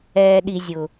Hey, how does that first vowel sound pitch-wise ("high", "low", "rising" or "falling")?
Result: low